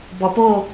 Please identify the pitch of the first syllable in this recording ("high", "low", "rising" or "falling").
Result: low